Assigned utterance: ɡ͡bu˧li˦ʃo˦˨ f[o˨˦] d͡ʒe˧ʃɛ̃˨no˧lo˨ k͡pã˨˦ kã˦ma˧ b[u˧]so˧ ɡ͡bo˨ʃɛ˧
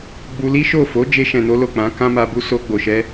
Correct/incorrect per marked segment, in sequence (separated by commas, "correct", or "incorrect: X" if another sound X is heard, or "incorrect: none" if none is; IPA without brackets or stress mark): correct, correct